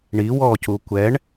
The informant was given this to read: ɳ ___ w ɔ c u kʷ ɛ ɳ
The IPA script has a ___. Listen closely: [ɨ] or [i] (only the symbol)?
i